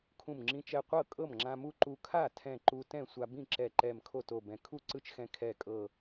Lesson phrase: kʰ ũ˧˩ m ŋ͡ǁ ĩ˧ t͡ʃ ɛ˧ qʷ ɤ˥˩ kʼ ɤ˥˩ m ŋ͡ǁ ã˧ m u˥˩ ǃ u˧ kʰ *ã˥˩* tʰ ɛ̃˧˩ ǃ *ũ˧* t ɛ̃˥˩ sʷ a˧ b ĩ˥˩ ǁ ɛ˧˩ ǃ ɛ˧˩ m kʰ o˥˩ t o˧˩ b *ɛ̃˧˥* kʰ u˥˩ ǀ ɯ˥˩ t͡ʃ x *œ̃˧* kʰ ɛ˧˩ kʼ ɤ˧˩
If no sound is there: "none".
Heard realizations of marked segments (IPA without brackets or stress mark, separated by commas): a˥˩, u˧, ɛ̃˧˩, ɛ̃˧